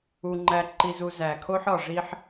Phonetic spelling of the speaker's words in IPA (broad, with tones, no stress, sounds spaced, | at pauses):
u˨ ŋ͡ǃ æ˨ ǃ i˨ z u˨ z æ˨ kʰ o˦ ħ ɒ˨ ʐ i˦ ħ